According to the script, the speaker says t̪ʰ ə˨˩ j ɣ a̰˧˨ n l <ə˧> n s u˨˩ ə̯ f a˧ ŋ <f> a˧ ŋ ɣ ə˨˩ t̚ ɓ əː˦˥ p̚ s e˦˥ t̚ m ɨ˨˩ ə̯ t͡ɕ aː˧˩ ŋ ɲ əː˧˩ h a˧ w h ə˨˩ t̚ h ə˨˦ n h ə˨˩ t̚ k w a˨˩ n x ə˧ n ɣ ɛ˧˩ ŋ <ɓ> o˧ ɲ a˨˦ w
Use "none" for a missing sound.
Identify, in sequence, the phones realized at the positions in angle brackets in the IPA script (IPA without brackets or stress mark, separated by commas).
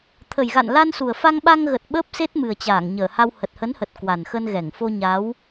a˧, ɓ, f